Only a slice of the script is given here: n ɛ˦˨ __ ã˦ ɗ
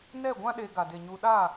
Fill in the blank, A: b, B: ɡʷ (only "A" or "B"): B